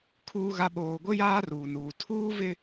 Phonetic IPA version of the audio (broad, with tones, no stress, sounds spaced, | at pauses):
kʰ uː˦ ɣ a˦ ɓ oː˨ ɡʷ ɪ˦ j aː˦ r uː˨ n uː˨ tʰ uː˦ v ɪ˦